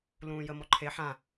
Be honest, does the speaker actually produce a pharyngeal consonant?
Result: yes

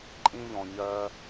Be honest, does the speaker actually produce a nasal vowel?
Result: yes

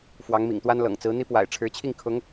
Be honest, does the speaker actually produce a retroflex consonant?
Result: yes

